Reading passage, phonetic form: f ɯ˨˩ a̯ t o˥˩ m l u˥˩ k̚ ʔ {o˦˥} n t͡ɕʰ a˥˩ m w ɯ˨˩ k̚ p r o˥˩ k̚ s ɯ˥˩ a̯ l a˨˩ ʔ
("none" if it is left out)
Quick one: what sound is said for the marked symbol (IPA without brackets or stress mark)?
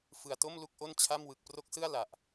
o˥˩